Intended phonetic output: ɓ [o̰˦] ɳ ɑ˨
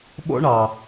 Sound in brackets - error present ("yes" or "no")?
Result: no